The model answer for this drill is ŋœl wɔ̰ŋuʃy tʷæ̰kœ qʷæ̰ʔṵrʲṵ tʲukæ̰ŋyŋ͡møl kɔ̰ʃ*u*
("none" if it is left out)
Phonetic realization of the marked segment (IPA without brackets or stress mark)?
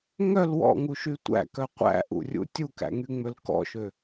ø